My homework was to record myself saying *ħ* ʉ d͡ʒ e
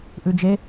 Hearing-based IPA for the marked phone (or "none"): ʔ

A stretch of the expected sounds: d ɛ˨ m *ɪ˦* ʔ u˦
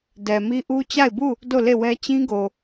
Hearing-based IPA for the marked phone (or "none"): i˦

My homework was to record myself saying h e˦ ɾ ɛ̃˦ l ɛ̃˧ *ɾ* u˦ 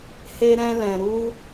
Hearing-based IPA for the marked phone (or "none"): ɾ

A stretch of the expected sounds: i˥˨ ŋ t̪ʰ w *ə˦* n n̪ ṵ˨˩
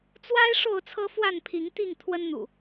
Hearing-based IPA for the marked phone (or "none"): ə˦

